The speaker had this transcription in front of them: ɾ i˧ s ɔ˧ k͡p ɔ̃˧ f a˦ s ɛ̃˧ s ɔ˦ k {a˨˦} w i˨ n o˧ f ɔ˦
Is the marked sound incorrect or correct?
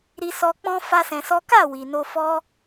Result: incorrect